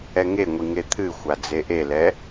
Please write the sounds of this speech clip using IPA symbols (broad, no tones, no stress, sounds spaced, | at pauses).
ɛ ŋ e ŋʷ i ŋ e t̪ʰ ɨ xʷ a d͡z e ʔ e l ɛ